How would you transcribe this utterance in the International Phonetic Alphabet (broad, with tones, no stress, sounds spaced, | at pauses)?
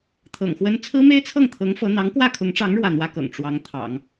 t̪ʰ ɤ̰˨˩ ŋ x w ə˥ n t͡sʰ ɹ̩˥ m e˥ ɪ̯ t͡sʰ ɤ˥˩ ŋ t̪ʰ ɤ˧˥ ŋ f ɤ˧˥ n̪ ɑ˧˥ ŋ k w ä˥˩ kʰ ʊ˧˥ ŋ ʈ͡ʂ ɑ˧˥ ŋ ɻ w ä˥˩ n̪ w ä˥ k ɤ̰˨˩ ŋ ʈ͡ʂ w ɑ˧˥ ŋ t̪ʰ ɑ̰˨˩˦ ŋ